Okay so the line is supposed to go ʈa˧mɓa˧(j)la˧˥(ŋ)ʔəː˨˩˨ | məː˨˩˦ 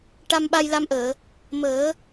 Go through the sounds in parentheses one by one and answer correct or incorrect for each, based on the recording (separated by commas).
correct, incorrect